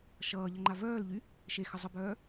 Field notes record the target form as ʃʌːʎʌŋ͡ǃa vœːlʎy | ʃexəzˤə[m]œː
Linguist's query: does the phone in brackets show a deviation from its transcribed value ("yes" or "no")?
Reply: yes